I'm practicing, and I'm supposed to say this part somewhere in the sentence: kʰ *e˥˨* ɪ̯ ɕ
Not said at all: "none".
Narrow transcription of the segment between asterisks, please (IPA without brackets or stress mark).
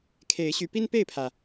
e˨˦